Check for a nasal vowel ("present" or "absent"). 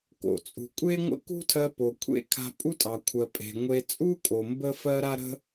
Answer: absent